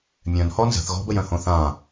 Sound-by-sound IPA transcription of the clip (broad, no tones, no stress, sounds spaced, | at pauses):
mʲ œ̃ n h ɔ n z ə̤ θ ɣ ɔ̤ b ə j œ̃ h õ θ ã